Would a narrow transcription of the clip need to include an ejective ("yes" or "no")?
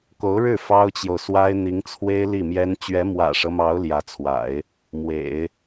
no